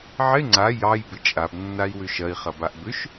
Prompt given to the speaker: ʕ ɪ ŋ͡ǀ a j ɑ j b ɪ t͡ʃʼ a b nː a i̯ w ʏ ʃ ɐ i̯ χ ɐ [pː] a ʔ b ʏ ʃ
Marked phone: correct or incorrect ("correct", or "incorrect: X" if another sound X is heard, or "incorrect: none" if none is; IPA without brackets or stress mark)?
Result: incorrect: b